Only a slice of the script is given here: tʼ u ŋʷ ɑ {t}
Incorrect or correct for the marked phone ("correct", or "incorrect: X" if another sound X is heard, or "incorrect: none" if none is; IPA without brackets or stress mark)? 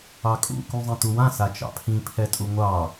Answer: incorrect: none